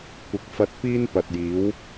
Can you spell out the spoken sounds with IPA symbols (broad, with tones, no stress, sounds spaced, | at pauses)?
kʷ ɪ˨˥ k̚ f ɐ˧ t̚ p iː˥ n p ɐ˨ t̚ j iː˨˥ w